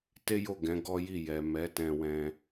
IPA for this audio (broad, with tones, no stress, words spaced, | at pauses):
te˦jo˦˨ ɡɛ̃˨˦ɡɔ˦ji˦˨ jɛ˨mɛ˨˦ tɛ̃˧wɛ̃˧